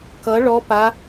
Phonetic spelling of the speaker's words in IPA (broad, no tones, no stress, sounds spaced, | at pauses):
k ʌ ɭ ɔ p a